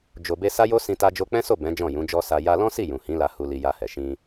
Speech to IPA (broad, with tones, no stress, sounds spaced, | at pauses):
d͡ʒ o˨ b e˧ s a˦ j o˦ s ĩ˧ t a˧ d͡ʒ o˧ k͡p ɛ̃˦ s o˦˨ b ɛ̃˨˦ d͡ʒ ɔ̃˦˨ j ũ˨˦ d͡ʒ ɔ˦ s a˧ j a˧ l ɔ̃˦ s i˦˨ j ũ˨ h ĩ˨˦ l a˧ h u˧ l i˧ j a˧ h ɛ˨ ʃ ĩ˧